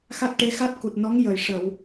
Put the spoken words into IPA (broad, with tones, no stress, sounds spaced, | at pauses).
x a˦˥ t̚ ʈ e˧˥ x a˦˥ t̚ k u˨˩ t̚ n ɔ˧˥ ŋ j ə˨˩ j ʂ ə˨˩˨ w